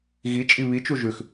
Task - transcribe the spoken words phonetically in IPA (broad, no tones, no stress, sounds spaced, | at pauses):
ɣ i t͡ʃʼ i β i t͡ʃ u ʒ ʉ x